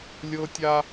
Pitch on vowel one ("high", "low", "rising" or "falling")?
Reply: high